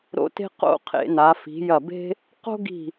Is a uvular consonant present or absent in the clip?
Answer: present